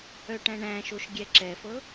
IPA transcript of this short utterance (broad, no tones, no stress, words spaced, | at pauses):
œʈæ̃ɳæ̃ʃoʃ ɡʲɛǁɛfɤ